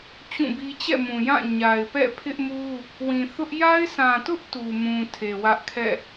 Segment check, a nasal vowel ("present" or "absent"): present